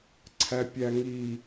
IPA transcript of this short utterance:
ǀʰ æ pʲ æ ŋ i

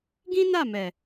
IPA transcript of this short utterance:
ɡ ĩ˦ n a˦˨ m ɛ˨

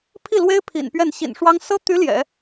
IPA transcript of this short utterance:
pʰ i˥˩ l w e˥ ɪ̯ pʰ ḭ˨˩ n p ɥ ɛ˥˩ n ɕ ḭ˨˩ n ʂ w ɑ˥ ŋ s ɤ˥ t̪ y˧˥ l j ɛ̰˨˩˦

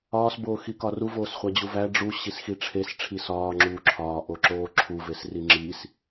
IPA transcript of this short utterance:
ɒː s b oː x i k ɒ r u v oː s χʷ æ d͡ʑ u v æ ɖ͡ʐ u ɕ i s x i ʈ͡ʂʰ e s ʈ͡ʂʰ i s ɒː ŋ͡ǁ uː ǁʰ ɒː ʔ o ǁ oː ǁʰ u v e s r i ŋ͡ǁ iː s

